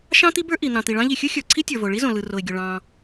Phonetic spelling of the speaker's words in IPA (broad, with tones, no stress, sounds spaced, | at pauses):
ʃ ɑ̃˥ t̪ i˥ b ə˞˥ ʔ i˩ n̪ ɑ̃˩ t̪ i˩ ɭ ɑ̃˥ ʎ i˩ xʲ ɯ˥ xʲ ə˞˩ ǀʰ i˥ tʲ ə˞˩ v o˩ ɭ i˥ z õ˩ l ɯ˩ r o˩ ɪ̯ ɡʲ o˩ ɭ ɑ̃˩